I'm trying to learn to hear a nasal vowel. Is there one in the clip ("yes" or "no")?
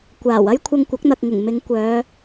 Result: no